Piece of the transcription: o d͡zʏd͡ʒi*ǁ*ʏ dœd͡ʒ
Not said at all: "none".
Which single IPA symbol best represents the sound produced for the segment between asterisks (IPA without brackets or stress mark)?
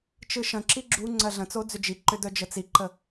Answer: ǃ